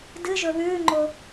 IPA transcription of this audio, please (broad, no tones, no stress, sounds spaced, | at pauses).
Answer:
d ɨ ʒ ɵ β ʉː ŋ͡ǃ o